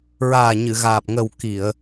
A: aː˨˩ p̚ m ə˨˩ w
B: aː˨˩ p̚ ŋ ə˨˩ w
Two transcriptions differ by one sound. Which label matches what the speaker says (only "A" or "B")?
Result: B